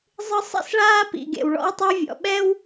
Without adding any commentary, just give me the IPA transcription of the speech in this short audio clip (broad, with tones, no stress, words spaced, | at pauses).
zˤɯ˥ sˤḭ˥sɭaː˥pḭ˩ ɡḛ˩w ɭɔ̰˥wtˤa˥vʲɔ̰˩ ɓɛ˥w